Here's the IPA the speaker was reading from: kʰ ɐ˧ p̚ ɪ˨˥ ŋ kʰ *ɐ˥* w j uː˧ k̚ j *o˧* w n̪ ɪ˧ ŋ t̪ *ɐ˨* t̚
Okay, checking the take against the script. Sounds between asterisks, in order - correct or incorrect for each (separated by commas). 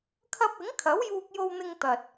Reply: incorrect, correct, correct